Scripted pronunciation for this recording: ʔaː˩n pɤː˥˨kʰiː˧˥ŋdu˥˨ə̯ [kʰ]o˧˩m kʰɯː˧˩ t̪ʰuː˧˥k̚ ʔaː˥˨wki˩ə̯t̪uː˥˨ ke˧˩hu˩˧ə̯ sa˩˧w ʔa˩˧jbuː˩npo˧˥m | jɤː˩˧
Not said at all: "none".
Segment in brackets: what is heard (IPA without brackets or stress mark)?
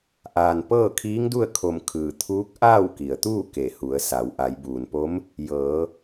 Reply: kʰ